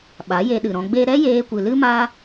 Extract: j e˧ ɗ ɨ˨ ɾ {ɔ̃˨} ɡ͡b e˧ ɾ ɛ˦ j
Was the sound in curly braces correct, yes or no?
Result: no